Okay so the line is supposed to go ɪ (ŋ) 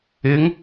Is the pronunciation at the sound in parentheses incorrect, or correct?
correct